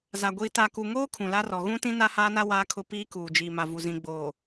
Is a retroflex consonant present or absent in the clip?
absent